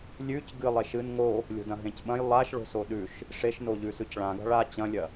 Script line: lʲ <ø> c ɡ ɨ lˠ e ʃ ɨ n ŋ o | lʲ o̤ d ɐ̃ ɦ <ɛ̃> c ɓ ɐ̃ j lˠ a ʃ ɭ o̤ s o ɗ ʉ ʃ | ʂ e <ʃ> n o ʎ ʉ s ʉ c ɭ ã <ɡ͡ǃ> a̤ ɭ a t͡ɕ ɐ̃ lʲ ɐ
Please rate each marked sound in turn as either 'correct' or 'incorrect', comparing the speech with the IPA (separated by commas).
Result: incorrect, incorrect, correct, incorrect